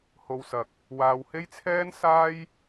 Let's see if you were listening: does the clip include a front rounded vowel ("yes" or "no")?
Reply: no